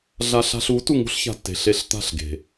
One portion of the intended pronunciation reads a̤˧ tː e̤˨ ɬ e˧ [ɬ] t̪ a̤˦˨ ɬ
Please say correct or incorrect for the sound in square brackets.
correct